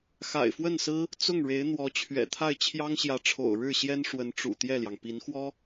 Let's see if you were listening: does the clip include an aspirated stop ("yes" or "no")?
yes